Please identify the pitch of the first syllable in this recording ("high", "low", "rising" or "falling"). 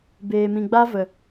low